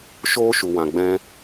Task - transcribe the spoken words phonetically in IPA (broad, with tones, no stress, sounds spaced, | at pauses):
ʃ oː˦ ʃ u˨ w ã˨ ɡ͡b ɛ̃˧